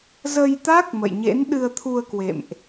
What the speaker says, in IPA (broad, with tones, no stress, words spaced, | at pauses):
zə˧jt̪a˦˥k̚ mə̰˧˨jɲḛ˧˥n ɗɨ˧ə̯t̪ʰu˧ə̯kwḛ˧˨mʔ